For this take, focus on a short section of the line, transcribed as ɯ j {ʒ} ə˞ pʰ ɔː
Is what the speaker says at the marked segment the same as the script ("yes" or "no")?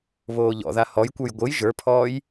yes